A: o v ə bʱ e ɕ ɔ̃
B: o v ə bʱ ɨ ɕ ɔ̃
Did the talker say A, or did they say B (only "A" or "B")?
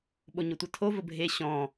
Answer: A